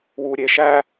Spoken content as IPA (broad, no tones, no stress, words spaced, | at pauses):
wuɾʲeʃæ